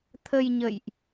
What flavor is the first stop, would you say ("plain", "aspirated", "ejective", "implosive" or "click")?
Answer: aspirated